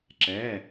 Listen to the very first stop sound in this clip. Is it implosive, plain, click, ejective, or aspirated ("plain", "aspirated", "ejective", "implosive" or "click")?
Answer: click